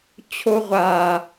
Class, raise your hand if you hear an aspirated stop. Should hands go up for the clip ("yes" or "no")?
yes